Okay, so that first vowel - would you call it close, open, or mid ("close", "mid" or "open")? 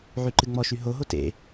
close